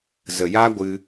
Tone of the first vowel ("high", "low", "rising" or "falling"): low